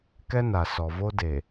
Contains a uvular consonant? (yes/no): no